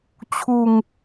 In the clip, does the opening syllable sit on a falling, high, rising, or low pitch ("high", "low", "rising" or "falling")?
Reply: falling